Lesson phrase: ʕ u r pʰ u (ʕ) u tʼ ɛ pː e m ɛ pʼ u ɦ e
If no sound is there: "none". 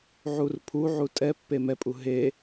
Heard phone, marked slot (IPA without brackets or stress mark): ʕ